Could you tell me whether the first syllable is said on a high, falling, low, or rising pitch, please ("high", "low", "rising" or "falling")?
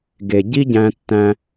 low